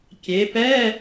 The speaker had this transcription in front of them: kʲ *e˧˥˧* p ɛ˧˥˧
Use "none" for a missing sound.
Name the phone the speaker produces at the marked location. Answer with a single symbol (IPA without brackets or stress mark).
e˩˧